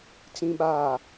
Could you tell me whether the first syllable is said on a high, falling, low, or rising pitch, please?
low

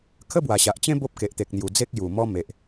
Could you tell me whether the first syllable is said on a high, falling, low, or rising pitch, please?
high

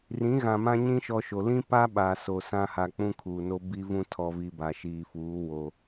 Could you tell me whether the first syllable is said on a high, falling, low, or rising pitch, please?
rising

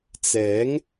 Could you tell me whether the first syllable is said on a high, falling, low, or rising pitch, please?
rising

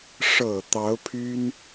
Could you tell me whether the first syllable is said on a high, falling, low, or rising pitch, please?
low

